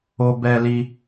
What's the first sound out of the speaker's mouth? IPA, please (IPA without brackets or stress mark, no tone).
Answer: o